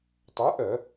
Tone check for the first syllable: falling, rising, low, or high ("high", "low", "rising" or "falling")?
rising